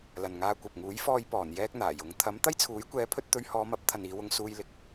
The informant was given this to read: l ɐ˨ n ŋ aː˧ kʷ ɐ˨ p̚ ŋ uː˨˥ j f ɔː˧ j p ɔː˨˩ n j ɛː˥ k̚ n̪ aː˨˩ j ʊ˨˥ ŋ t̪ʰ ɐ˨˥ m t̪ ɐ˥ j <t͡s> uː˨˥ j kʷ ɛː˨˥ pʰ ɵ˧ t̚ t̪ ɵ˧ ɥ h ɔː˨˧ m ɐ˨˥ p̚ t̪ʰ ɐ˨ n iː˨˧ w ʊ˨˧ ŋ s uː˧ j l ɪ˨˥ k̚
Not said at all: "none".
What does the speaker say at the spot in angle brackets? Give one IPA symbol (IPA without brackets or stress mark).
t͡sʰ